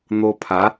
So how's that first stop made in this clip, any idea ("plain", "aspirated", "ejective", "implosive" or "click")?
aspirated